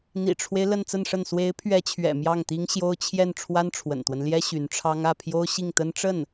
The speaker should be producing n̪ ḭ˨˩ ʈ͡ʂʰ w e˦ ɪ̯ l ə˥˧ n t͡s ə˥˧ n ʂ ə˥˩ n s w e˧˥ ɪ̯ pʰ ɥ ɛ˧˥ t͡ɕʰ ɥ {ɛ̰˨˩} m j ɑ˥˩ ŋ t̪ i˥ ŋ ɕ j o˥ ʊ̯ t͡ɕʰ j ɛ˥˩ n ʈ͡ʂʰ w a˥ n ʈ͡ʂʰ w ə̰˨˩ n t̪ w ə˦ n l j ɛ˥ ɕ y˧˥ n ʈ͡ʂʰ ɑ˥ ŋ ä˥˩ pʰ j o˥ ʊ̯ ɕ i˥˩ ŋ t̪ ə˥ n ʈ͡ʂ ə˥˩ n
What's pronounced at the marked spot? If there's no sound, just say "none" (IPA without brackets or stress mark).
ɛ̰˨˩